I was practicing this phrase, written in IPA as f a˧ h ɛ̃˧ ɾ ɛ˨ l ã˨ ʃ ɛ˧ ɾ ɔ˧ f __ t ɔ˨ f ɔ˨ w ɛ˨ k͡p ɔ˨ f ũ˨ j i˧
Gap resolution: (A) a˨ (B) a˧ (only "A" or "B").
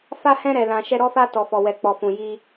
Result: B